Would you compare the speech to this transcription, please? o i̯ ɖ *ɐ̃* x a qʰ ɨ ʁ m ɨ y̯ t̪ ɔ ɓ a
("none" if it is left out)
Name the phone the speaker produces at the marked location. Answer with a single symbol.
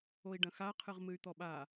ɐ̃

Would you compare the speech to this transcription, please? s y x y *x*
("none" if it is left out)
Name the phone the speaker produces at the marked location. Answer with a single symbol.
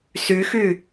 none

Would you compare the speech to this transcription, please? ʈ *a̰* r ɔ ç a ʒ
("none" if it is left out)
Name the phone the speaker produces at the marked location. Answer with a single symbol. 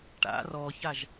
a̰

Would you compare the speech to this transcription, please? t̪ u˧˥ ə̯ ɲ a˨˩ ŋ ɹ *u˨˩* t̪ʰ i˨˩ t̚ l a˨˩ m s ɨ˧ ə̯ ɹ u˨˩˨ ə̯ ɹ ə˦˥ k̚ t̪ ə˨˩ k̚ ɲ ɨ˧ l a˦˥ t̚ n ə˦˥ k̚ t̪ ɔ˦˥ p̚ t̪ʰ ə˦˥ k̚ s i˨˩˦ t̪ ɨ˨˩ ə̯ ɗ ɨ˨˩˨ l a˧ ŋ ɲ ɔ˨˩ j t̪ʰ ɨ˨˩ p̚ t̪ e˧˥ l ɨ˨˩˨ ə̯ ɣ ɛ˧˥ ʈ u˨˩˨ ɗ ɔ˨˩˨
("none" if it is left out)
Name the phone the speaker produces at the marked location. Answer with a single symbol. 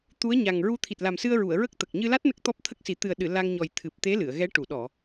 u˧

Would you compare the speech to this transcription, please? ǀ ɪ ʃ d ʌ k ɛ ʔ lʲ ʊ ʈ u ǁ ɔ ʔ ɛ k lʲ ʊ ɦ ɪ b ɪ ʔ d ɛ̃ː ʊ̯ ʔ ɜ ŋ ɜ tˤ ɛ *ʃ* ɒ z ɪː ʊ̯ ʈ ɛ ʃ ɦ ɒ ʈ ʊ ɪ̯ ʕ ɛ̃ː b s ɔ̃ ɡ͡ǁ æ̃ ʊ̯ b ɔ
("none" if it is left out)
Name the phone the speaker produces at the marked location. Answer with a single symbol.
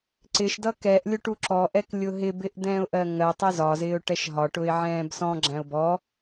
z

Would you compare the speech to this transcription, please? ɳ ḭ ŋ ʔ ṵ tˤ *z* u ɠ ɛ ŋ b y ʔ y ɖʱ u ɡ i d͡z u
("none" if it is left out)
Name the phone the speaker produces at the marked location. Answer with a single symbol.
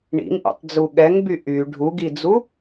d͡z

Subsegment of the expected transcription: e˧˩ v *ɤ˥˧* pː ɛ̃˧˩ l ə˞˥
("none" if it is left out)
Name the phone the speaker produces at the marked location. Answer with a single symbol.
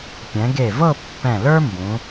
ɤ˥˧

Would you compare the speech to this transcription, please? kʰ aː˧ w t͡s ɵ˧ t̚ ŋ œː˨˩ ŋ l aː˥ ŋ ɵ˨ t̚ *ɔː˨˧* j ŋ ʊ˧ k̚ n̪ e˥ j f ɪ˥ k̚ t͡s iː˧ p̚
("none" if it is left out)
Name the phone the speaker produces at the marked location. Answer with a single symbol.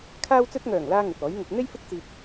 ɔː˨˥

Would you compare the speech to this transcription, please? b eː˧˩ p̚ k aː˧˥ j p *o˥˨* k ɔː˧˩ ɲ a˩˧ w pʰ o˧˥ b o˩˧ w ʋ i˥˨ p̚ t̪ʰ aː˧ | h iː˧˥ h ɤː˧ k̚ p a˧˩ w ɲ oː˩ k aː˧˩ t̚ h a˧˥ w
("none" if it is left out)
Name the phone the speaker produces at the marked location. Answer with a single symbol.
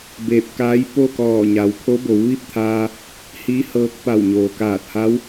o˥˨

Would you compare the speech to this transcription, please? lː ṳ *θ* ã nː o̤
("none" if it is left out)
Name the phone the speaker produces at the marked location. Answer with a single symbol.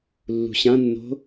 ɕ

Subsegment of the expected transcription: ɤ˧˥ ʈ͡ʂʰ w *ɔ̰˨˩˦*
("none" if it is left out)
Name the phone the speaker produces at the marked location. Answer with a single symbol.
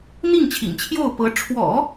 ɔ̰˨˩˦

